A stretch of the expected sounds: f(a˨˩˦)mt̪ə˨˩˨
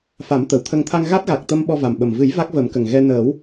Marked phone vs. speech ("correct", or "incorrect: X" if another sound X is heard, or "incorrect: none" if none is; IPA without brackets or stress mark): correct